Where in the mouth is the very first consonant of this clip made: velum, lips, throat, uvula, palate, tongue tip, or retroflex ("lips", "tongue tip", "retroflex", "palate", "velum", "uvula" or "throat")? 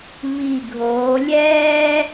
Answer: lips